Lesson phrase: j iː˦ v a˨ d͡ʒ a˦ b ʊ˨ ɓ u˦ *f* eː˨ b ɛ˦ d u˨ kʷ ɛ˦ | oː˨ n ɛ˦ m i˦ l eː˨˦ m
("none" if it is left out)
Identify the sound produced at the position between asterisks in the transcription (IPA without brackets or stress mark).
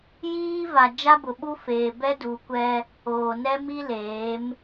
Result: f